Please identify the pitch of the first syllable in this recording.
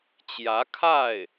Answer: rising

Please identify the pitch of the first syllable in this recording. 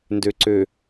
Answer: low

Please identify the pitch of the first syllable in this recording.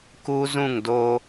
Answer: high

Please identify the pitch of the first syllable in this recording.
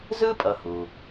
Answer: high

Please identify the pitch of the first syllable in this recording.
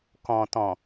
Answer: low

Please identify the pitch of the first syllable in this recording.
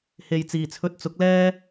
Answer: low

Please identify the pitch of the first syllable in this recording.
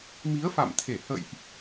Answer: rising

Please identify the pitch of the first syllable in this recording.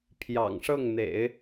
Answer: low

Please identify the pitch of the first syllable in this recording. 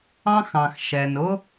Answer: high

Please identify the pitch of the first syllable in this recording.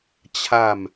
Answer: falling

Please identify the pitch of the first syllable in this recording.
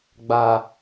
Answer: high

